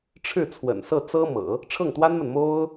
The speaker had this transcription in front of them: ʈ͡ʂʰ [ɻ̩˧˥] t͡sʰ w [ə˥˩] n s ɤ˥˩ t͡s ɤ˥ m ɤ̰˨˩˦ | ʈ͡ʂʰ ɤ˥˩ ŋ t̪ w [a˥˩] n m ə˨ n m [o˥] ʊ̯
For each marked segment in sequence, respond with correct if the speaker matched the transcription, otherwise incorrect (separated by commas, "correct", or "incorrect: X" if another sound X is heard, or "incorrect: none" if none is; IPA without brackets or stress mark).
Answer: incorrect: ɻ̩˥˩, incorrect: ə̰˨˩, incorrect: a˥, correct